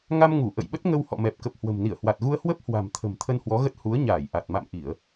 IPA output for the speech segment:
ŋa˧m ŋu˧˩ ʔə̰˧˨jɓə˦˥t̚ŋə˧w hɔ̰˧˨mɛ˨˩p̚kə˨˩p̚hwə̤˨˩m ni˧˩ə̯hwa˨˩t̚ɣu˧ə̯ hwə˦˥p̚ hwa̤˨˩mt̪ʰə̤˨˩m t̪ʰə˧nhwɔ˨˦ɣə˦˥t̚ hu˨˦ə̯ɲaː˧˩j ʔa˨˩t̚ ma̰˧˨mʔi˧˩˨ə̯

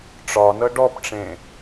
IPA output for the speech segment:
ʈ͡ʂɒnɤ ɖɔpʈ͡ʂẽ

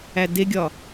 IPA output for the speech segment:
ædeɡʲɒ

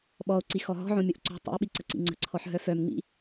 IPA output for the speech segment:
ɓɔo̯ǀi xɔɦɔ̤ʕõ mʲoʔǀo̤ tˤḭe̯ɓi ǀəǀḭŋ͡ǀə̤ǀʰɔħ ɦœfœmŋ͡mḭ

